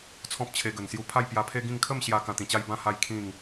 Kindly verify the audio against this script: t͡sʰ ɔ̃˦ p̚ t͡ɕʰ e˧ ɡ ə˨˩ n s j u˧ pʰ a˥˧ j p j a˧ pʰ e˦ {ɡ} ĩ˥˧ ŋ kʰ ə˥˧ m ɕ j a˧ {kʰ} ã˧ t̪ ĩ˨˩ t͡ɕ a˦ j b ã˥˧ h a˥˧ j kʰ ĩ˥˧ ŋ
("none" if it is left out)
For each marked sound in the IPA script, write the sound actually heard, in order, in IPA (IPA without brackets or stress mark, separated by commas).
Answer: ɡ, k